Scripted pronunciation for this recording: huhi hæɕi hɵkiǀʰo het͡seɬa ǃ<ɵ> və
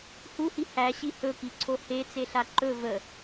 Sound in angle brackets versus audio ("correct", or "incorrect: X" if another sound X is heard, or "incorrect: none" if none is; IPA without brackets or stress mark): correct